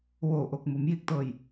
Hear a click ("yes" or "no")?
no